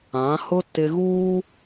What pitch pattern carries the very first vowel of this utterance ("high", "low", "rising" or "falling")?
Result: rising